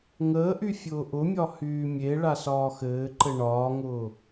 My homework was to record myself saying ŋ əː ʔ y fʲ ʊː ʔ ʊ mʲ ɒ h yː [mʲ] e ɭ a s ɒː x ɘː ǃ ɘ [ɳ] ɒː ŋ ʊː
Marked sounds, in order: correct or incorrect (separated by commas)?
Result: correct, correct